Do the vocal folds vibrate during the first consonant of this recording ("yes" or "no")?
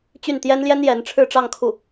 no